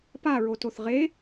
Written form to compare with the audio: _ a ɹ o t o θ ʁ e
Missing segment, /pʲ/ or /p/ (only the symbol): p